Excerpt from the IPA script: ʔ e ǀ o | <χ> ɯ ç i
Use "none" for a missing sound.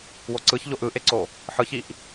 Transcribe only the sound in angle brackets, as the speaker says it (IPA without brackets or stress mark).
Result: ħ